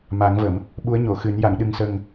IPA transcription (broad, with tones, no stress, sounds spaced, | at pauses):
m a˨˩˦ ŋ v ə˨˩˨ m | ɓ u˧˥ ə̯ ɲ o˨˩˨ x ɨ˨˩˦ n j a˨˩˨ ŋ ɗ ɨ˨˩ ŋ s ə˨˩ ŋ